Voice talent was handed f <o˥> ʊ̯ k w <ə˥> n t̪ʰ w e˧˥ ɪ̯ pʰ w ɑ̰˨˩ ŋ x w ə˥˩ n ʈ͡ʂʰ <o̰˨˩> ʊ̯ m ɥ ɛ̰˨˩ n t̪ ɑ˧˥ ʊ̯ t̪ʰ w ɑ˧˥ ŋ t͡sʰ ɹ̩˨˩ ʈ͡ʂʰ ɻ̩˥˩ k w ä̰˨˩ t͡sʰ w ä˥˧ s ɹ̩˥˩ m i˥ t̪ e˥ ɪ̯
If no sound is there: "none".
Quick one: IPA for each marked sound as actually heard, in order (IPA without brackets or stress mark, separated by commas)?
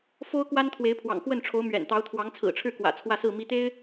o˥, a˥, o˧˥